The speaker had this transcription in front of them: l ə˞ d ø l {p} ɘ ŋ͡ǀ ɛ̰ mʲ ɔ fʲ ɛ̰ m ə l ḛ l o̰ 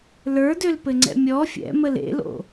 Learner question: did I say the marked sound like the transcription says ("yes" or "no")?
yes